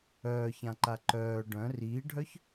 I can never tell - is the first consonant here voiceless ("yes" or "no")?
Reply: yes